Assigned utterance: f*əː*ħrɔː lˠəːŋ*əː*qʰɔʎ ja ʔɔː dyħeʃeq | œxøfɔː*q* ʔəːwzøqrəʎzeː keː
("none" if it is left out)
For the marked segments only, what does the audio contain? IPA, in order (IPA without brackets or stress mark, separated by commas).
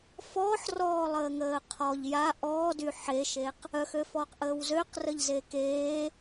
ɔː, əː, q